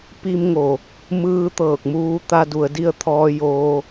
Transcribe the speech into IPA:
p i˧ m ŋ o˩ | m ɯː˧ t̪ ɤː˧˩ k̚ m uː˧ t̪ a˧ d u˩˧ ə̯ d i˧ ə̯ t̪ʰ ɔː˧ j oː˧

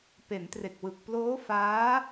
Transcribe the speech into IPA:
p e˩˦ n t r e˨˩ k̚ w ɯ˨˩ k̚ p l oː˦˥ f aː˦˥

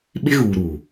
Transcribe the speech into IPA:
ɓ ɪ˦ ɣ uː˨ ɾ uː˨

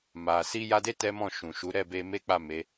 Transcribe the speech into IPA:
m a˨ s i˧ j a˧ d e˦ t ɛ˦ m ɔ̃˦˨ ʃ ũ˨ ʃ u˨˦ ɾ ɛ˦˨ b e˧ m e˦ k͡p a˦˨ m e˨˦

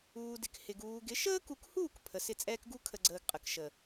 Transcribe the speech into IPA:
uː˧ d ɪ˨ k h ɪ˨ ɡ uː˨ ɡ ɪ˨˦ ʃ əː˦ k u˨ k h uː˦˨ k pʰ ə˨ s ɪ˦˨ t͡sʼ ɛː˦ k ɡ u˦ kʰ ə˨ ɡ͡ǀ əː˨ ɡ qʼ ə˨ k ʃ ə˨

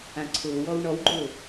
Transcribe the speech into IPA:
ã ǀʰ ʊː w ɔ w ɳ ɔ w ɡ͡ǃ ʊː

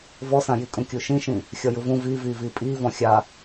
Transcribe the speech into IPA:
v ɔ s ã j i kʼ ũ kʲ u ʃ ĩ ʃ ĩ | xʲ ɔ j ɯ v ũ v iː v iː v iː pʼ iː v ɔ̃ xʲ a

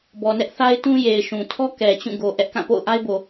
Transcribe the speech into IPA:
b ɔ˨ n ɛ˦ ʔ θ a˦ ɪ̯ t ũ˦ j e˨ ɪ̯ ʃ ũ˨ tʰ ɔ˦ k ɛ˨ t͡ɕ ũ˦˨ ɡ o˨ ʔ ɛ˦ ʔ k ã˦˨ p o̰˦˨ ʊ̯ ʔ a˦ ɪ̯ b o˨

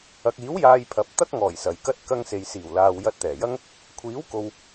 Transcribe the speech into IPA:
ɐ˨ k̚ iː˨˥ w j aː˧ j pʰ ɐ˨˥ p̚ t̪ ɐ˥ k̚ ŋ ɔː˨˩ j s ɐ˨ j k ɐ˥ t̚ k ɐ˧ ŋ s e˨ j s iː˨˩ w l aː˨ w j ɐ˧ t̚ t̪ ɛː˨˩ j ɐ˥ ŋ | kʷʰ iː˨˥ w k o˨ w

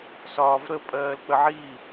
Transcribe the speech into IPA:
s ɒː v ɾ ə pʼ ɜː l k͡p ə ʕ i

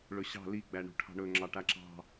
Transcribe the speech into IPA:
ɭ ɵ ɕ ɑ̤ l i ɡ͡b æ ɳ ṳ ʈʰ ɑ̤ ɳ ɵ ŋ͡ǁ ɑ ʈ a ǁ ɑ̤

